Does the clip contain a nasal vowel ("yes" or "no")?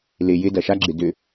no